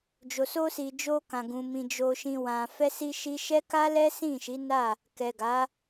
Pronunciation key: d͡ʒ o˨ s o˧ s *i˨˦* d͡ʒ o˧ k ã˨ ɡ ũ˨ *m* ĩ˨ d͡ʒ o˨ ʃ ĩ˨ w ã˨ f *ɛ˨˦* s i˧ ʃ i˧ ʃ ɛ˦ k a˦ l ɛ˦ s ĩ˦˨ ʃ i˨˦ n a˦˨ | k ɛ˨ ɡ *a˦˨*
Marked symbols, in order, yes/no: no, yes, no, no

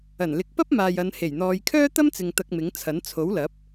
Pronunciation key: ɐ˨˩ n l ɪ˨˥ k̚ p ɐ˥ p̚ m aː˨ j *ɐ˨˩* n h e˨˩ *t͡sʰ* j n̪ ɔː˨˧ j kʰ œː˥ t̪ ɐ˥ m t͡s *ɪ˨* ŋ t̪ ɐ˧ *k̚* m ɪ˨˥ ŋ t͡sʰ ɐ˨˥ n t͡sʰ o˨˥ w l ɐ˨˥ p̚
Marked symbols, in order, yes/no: no, no, yes, yes

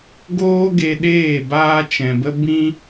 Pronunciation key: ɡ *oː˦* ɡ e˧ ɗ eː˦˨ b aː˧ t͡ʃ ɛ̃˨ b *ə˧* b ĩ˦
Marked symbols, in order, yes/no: yes, yes

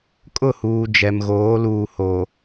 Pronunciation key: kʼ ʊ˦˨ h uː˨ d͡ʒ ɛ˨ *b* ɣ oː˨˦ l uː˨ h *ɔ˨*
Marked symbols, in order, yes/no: no, no

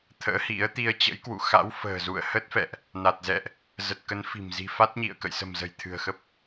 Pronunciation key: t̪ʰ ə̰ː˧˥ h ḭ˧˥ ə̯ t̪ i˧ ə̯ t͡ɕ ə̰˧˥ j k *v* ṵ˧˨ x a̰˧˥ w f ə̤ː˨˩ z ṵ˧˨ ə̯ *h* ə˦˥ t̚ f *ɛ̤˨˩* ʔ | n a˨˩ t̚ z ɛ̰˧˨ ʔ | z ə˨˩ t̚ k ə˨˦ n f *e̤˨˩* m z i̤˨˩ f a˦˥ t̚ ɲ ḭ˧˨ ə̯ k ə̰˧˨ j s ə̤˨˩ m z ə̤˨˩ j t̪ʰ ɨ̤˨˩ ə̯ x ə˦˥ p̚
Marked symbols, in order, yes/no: no, yes, no, no

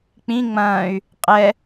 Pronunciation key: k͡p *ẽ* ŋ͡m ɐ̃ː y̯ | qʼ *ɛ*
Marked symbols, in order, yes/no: no, yes

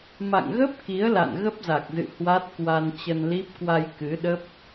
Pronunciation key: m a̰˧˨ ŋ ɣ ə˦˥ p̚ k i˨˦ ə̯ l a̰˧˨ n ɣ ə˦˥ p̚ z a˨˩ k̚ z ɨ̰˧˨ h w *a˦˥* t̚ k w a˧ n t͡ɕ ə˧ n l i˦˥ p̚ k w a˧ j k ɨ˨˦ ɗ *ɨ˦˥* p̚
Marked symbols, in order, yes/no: yes, no

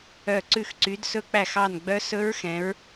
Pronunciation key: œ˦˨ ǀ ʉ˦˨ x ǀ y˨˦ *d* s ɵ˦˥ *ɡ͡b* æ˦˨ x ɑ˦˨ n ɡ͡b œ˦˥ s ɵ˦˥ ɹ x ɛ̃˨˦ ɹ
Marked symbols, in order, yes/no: yes, no

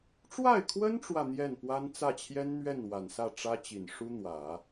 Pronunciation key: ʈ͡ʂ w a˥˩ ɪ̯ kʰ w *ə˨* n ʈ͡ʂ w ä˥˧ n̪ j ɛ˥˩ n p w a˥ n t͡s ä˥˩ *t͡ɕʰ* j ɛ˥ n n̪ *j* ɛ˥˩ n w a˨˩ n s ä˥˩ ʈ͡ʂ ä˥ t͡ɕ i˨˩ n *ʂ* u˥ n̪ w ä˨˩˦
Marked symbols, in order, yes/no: no, yes, no, yes

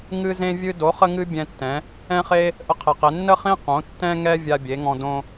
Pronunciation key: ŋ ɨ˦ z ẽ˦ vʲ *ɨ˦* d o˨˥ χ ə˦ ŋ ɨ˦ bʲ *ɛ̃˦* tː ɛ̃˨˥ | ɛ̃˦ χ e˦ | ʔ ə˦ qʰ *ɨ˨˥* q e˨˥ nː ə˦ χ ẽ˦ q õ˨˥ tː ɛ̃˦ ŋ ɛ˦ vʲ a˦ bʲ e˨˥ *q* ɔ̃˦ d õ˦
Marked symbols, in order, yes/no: yes, yes, no, no

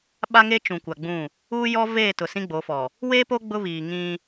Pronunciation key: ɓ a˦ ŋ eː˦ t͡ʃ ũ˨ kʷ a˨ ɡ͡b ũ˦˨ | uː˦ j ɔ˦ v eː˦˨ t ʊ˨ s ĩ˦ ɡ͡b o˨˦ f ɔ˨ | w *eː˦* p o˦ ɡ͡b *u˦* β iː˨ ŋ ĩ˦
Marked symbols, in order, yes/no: yes, no

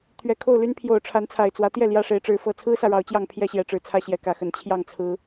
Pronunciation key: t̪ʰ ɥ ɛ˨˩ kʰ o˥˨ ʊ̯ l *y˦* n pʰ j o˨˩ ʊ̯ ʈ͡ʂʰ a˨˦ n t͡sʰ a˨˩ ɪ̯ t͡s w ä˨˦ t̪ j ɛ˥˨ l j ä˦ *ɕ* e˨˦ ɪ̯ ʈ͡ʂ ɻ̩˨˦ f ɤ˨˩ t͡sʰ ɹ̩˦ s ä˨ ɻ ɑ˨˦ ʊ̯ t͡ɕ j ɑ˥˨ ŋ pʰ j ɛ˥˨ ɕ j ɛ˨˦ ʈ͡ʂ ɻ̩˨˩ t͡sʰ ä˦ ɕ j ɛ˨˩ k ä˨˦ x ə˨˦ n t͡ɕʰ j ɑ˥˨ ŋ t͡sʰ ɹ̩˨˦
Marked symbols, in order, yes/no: yes, no

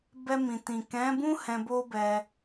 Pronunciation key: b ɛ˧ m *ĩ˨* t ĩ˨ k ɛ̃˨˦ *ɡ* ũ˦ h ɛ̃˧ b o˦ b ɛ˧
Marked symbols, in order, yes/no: yes, no

